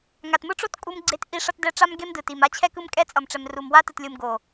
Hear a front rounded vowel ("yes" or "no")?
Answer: no